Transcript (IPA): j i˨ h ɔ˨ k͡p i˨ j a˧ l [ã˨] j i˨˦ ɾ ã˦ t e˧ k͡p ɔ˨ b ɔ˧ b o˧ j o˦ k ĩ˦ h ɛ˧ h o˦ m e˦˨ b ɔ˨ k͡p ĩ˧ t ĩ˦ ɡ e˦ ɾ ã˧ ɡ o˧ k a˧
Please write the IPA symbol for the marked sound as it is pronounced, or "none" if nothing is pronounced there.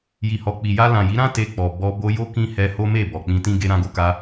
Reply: ã˨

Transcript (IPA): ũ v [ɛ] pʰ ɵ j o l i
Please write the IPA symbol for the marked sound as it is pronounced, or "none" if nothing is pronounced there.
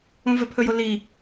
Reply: ɛ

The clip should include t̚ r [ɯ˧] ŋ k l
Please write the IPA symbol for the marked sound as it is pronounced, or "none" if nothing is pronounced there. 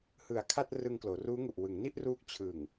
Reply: ɯ˧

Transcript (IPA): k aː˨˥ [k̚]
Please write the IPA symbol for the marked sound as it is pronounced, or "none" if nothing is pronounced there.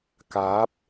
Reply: p̚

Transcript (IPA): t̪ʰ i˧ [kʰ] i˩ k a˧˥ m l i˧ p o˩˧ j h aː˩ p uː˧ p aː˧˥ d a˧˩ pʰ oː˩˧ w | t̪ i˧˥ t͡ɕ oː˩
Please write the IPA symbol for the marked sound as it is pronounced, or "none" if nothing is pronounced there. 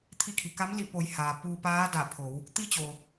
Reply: kʰ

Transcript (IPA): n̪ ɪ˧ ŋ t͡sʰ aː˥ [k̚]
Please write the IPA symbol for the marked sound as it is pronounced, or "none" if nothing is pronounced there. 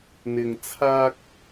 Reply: k̚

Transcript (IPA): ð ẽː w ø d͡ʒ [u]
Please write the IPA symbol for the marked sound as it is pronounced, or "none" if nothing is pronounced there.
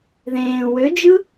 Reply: ɯ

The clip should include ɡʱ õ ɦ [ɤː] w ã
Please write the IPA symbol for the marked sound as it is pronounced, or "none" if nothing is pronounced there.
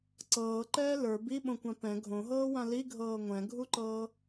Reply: ɤː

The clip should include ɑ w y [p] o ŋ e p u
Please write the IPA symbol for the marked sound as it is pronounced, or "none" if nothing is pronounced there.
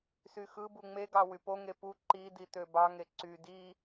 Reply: p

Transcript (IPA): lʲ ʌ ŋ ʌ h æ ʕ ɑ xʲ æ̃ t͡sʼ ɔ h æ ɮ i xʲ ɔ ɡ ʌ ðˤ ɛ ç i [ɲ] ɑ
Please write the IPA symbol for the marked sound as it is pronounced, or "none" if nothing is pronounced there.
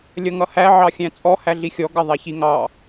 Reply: ŋ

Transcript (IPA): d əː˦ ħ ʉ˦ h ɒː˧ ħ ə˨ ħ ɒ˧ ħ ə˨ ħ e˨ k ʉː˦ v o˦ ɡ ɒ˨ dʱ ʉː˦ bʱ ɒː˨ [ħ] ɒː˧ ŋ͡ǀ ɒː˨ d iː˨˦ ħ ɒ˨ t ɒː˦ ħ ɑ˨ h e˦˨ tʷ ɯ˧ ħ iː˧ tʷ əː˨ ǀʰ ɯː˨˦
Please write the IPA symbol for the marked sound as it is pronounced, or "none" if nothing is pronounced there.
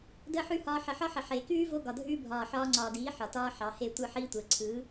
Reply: ħ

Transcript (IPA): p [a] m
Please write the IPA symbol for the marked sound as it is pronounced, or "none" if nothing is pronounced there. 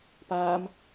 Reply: aː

